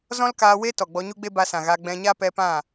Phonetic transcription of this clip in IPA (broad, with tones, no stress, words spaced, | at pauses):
zɔ̃˦lkaː˧ we˦ tɔ˨ɡ͡bɔ˧ɲu˦ɡ͡be˦ ba˧sã˨ ɣa˧ ɡ͡bɛ̃˧ɲa˦ pɛ˧pã˦˨